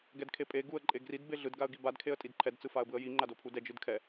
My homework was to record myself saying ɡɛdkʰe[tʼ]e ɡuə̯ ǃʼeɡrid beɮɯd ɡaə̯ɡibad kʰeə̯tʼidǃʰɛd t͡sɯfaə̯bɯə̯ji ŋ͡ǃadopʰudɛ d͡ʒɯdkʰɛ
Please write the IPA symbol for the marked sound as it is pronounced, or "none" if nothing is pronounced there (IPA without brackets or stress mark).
pʼ